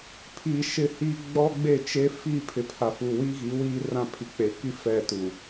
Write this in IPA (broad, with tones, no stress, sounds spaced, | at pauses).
pʰ i˨ ʃ ɪ˦ h i˦ ɡ͡b ɔ˦ ɡ͡b e˦˨ t͡ʃ e˦ f i˦˨ pʰ ɪ˨ pʰ a˨ f u˨ w i˦ ɣ i˨˦ w iː˦ r ã˦ pʰ i˨ k͡p e˨ k i˦ f ɛ˦˨ t u˨